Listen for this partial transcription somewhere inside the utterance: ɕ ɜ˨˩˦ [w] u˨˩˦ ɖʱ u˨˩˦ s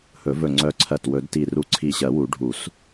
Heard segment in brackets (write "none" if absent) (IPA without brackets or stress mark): w